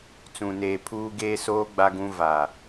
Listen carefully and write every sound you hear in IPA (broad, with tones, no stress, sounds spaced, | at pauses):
t͡s ũ˨ n eː˨ pʰ uː˦ ɡ eː˦ s oː˦ ɡ͡b a˦ ɡ ũ˦ v a˨